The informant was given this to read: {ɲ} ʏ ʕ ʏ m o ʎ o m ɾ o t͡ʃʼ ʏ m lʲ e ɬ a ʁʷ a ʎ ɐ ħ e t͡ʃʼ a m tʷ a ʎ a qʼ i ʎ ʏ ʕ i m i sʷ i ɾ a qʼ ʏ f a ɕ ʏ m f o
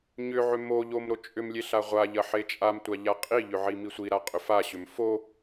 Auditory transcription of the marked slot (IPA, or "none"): ɲ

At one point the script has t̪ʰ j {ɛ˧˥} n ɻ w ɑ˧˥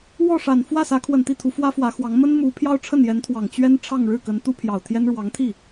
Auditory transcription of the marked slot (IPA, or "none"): ɛ˥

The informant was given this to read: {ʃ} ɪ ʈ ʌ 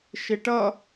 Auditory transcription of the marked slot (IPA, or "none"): ʃ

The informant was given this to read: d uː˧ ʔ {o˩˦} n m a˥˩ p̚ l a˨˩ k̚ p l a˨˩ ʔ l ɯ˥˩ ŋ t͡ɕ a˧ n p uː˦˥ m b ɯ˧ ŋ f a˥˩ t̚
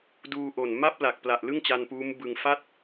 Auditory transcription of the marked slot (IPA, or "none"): o˨˩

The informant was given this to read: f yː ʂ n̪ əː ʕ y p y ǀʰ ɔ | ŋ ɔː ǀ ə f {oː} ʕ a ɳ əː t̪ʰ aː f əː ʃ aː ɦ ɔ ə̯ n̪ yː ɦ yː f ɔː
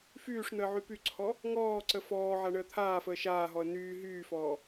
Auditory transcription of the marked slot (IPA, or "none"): ɔː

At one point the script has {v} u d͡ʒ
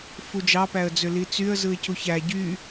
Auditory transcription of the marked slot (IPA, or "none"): f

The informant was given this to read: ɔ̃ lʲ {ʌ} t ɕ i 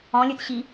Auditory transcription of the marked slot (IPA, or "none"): ə˞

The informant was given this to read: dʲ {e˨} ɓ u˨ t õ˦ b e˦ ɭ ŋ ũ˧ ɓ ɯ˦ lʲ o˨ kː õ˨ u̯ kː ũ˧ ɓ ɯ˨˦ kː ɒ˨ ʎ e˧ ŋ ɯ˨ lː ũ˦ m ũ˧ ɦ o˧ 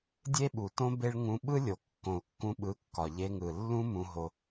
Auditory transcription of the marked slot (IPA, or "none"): e˦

